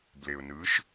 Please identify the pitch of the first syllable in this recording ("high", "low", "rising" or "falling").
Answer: low